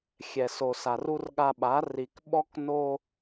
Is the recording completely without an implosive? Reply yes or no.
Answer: no